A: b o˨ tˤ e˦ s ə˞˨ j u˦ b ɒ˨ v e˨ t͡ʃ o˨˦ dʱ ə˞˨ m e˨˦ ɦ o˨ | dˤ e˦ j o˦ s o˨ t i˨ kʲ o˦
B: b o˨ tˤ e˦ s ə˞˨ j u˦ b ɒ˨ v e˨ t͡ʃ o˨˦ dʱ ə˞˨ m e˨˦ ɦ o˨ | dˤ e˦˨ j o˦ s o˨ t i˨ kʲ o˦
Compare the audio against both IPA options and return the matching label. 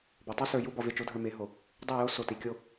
B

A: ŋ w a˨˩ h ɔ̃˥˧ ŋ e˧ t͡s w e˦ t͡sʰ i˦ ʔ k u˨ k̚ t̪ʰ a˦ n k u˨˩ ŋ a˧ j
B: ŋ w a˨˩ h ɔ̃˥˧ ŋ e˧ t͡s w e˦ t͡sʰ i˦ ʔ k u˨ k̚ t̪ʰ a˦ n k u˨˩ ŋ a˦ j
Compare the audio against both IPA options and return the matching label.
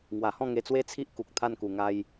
A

